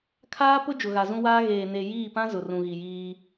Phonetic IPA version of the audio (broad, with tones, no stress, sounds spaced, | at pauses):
kʰ aː˦ p ʊ˦ d͡ʒ ʊ˨ ɣ a˨ z ũ˦ w aː˦ ɣ eː˨ n e˨ j iː˦˨ p ã˦ z ʊ˨ r ũ˨ ɣ i˨ j iː˦